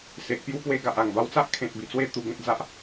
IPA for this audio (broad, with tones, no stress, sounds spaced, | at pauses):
s e˨ ʔ p j u˦ p w e˧ ɡ a˨ ʔ a˨˩ ŋ b a˧ w t͡s a˦ ʔ kʰ ẽ˨ t̚ b i˧ t͡s w e˥˧ t̪ u˧ ɡ ẽ˦ t̚ d͡z a˦ ʔ